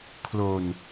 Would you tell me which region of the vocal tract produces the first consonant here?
velum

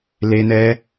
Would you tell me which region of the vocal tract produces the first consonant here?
tongue tip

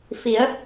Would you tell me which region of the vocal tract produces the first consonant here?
lips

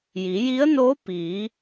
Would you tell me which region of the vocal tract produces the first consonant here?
palate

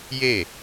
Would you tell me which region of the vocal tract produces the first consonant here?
palate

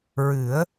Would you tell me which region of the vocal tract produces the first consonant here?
tongue tip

